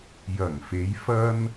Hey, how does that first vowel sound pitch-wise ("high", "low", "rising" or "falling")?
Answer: low